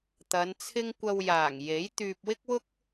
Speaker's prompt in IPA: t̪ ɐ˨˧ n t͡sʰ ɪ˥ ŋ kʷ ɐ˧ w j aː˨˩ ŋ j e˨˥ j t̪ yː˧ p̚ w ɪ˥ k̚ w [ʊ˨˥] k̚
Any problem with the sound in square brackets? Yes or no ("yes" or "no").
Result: yes